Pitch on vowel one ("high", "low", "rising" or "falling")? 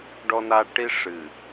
low